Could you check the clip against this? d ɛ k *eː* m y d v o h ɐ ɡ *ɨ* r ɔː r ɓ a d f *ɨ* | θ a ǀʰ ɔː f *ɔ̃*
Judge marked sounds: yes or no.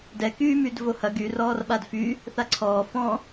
no, no, no, yes

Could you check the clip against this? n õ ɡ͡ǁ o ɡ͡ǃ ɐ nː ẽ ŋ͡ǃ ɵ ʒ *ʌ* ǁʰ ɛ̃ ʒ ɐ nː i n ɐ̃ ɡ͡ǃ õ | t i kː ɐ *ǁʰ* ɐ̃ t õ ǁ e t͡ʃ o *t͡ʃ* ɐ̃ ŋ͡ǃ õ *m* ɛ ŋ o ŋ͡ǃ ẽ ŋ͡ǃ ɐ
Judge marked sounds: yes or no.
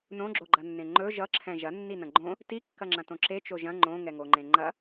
yes, no, no, no

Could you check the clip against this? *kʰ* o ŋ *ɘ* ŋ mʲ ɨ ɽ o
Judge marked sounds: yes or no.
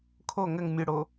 yes, yes

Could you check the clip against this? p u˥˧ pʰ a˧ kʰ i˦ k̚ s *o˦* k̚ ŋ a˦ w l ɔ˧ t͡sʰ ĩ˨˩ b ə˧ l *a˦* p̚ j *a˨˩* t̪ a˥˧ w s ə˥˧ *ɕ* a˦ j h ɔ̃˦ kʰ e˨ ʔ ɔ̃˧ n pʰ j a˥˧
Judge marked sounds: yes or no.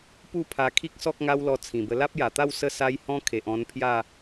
no, yes, yes, no

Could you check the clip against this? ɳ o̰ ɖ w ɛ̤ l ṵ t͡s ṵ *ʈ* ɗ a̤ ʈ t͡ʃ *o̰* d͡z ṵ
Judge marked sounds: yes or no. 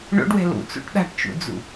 yes, no

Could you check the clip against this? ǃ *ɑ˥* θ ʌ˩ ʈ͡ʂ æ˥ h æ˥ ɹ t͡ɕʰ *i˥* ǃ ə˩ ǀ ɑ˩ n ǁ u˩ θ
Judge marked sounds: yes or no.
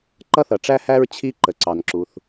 no, yes

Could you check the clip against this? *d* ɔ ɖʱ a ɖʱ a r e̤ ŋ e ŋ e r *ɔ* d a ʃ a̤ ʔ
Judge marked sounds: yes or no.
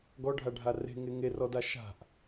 no, yes

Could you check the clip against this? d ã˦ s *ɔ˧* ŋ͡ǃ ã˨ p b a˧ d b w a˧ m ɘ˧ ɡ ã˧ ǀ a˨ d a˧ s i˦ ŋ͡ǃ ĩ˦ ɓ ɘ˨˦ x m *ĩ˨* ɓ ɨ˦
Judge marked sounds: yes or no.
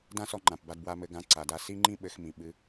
yes, yes

